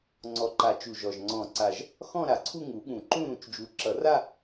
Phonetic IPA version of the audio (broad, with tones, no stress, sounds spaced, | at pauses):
ŋ͡ǀ ɔ˨˩ ǃ a˨˩˦ t͡ʃ u˨˩ ʒ ɔ˨˩ ʒ ŋ͡ǀ ɔ̃˨˩˦ ǀ a˨˩ ʒ | x ɔ̃˥˧ ɾ a˨˩ ǀʰ u˥˧ ŋ u˨˩˦ ɠ ũ˨˩˦ ǃ ũ˥˧ ɾ ũ˨˩˦ t͡ʃ d͡ʒ u˨˩ ǁ ʌ˨˩˦ r a˥˧